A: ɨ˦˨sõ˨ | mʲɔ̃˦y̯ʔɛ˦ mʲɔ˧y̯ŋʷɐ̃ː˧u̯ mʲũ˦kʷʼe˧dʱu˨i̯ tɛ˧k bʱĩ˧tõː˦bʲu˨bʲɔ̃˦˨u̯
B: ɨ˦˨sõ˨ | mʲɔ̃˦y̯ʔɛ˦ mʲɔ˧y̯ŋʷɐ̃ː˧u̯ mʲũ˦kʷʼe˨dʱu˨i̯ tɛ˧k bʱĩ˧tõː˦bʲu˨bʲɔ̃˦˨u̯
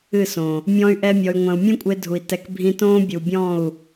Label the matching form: A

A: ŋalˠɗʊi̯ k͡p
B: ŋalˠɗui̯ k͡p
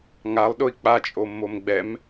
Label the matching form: A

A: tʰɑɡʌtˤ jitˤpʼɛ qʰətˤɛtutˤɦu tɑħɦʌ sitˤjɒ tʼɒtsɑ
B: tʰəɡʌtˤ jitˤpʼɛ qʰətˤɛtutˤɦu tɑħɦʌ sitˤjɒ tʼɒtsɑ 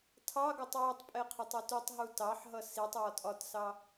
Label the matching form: A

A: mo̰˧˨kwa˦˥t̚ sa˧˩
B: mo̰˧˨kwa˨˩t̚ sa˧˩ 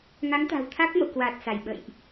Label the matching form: B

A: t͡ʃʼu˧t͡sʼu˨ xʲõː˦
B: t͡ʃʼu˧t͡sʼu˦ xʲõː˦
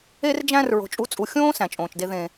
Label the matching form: A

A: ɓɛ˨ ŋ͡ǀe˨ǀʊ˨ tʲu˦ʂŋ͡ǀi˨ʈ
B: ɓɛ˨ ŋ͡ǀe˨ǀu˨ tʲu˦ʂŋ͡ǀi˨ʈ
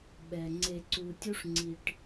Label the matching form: B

